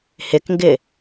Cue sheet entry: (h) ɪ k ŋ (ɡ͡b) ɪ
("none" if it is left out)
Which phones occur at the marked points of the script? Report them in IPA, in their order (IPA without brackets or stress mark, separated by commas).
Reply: h, ɡ